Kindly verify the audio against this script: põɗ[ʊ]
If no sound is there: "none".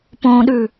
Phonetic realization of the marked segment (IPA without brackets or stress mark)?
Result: ʉ